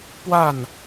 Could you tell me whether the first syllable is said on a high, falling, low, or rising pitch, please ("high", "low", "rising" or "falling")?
falling